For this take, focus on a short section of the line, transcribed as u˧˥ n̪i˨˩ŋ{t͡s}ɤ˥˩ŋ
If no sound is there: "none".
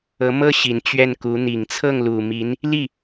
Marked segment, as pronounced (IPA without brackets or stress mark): t͡sʰ